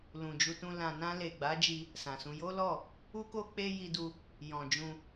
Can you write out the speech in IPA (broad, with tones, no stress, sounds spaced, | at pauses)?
l ũ˨ d͡ʒ u˧ t ũ˧ l ã˨ n ã˧ l e˨ ɡ͡b a˨˦ d͡ʒ i˧ | s ã˨ s ũ˧ j o˦ l ɔ˦˨ | u˦ k o˦ k͡p e˦ j i˧ d u˧ | j ɔ̃˨ d͡ʒ ũ˧